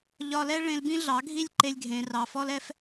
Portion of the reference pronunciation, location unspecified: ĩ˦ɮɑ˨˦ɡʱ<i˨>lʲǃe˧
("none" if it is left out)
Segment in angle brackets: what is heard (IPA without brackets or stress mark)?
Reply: i˦